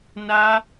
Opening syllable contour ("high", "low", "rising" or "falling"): high